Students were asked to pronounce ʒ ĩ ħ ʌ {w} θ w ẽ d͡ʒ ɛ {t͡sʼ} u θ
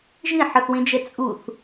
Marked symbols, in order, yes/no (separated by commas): no, yes